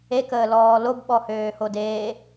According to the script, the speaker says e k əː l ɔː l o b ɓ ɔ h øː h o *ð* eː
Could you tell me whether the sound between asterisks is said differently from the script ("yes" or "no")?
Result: yes